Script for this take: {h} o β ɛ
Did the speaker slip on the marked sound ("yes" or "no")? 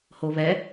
no